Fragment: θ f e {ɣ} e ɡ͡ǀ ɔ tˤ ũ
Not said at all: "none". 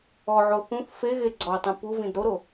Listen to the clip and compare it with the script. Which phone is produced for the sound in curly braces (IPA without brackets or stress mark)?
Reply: ɣ